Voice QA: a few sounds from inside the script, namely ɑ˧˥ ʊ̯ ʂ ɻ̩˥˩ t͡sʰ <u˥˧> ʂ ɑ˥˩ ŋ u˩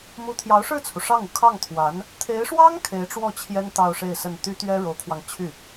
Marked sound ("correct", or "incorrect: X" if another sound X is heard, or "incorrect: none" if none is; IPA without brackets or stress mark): incorrect: u˩